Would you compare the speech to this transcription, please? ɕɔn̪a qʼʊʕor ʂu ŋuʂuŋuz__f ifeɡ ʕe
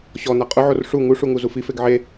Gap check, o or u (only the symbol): u